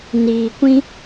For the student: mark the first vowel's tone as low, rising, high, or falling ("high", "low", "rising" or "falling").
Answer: low